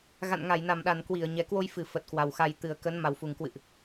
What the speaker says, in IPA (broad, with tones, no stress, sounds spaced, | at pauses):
ɣ a̰˧˨ n ŋ a˧˩ j n a˧˩ m ɗ a˧˩ n k w i˧˩ ə̯ ɲ ɛ˨˩ k w o˧ j f ɨ˧˩ f ə˨˩ t̚ k w a˨˩ w x a˧ j t̪ ɨ˨˩ ə̯ k ə˨˦ n m a˨˩ w f u˨˩ ŋ k w ɨ̰˧˨ ʔ